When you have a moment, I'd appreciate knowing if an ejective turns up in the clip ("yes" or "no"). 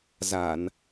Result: no